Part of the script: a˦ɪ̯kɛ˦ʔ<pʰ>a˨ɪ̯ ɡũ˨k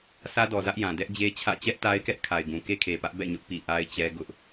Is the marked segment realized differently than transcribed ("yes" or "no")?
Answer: yes